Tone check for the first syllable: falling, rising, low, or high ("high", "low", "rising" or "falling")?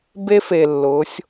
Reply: high